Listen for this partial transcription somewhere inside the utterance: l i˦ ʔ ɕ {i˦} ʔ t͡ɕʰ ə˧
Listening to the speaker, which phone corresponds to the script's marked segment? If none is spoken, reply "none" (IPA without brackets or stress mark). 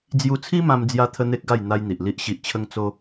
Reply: i˨